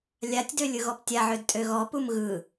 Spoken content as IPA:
lʲ a tʲ d ø lʲ ɯ ɣ ɔ p tʲ a ʕ ø d tʼ ø ɣ ɔ p u m ɣ ɯ

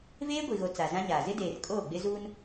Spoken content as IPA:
v eː˦ ɡʷ i˨ ɣ o˨ t͡s a˨ z ã˦ ɲ aː˨ z ɪ˦ d eː˨ r kʼ oː˦˨ ɡ͡b ɪ˦ z uː˦ n

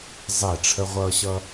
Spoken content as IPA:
zˤ ɛ˦˨ ʈ͡ʂʰ ə˦ ʁʷ ʌː˧ ɕ ʌ˧

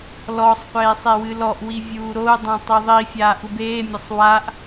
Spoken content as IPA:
l ɔ sˤ qʷ eː sˤ e w ɨ l ɔ ʔ w i vʲ uː ɾ o u̯ dˤ ɛ̃ tˤ i ðˤ i fʲ aː ʔ u b eː mʲ ɐ sˤ w a ʔ

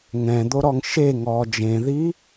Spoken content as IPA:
ŋ ɛ̃ d̪ o ɾ ɔ ŋ ʃ e ŋ ɔː d͡ʒ ẽ ð i

